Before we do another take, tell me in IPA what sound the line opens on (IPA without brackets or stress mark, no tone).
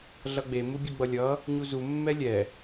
ɮ